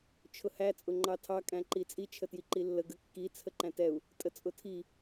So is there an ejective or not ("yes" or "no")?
yes